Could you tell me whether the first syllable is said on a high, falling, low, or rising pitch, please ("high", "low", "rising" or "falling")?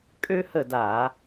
high